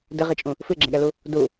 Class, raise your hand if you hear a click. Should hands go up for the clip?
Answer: yes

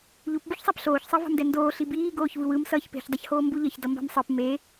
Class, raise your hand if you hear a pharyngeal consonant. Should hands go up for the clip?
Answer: no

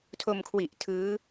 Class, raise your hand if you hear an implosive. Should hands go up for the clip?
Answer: no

